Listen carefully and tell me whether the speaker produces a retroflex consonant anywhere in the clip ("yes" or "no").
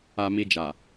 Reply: no